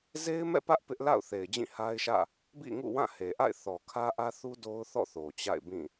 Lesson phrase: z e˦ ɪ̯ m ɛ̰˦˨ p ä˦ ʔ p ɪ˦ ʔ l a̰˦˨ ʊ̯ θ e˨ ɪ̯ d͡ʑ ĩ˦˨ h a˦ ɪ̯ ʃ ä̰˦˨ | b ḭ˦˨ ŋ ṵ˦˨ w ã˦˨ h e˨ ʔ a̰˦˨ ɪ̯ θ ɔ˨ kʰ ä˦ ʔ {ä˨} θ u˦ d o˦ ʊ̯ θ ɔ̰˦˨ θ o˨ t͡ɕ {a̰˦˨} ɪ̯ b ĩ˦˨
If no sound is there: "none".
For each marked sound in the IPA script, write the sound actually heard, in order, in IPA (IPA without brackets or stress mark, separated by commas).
ä˦, a̰˦˨